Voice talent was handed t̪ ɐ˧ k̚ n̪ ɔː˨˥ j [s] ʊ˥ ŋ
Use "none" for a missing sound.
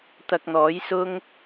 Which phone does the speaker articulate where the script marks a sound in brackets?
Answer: s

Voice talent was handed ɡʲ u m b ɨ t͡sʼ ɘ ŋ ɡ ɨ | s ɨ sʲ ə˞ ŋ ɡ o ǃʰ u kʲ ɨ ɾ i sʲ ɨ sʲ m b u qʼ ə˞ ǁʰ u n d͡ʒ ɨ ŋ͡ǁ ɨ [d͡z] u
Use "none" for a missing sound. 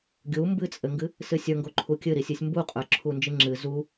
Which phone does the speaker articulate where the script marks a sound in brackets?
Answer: z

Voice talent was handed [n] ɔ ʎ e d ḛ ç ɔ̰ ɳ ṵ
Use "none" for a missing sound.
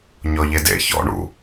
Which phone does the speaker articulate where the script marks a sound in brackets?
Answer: ɲ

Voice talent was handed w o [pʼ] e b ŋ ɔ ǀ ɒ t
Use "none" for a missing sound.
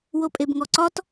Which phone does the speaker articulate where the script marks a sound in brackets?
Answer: pʼ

